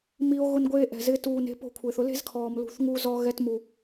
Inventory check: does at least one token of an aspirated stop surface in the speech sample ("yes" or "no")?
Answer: yes